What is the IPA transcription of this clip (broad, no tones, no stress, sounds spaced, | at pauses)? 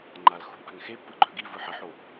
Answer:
ŋ͡ǃ a l x ṳ ʔ a̤ ŋ x e pː ɯ ɡ͡ǃ œ ɡ i v ɯ ħ ə ħ o